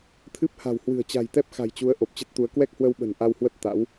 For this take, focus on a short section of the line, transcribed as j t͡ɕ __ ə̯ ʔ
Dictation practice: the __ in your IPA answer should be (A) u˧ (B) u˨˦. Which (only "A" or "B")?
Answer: B